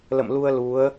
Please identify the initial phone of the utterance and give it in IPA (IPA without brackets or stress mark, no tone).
l